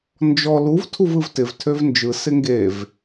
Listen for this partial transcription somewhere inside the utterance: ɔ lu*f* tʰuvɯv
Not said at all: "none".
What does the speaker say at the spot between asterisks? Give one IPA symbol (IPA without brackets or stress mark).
v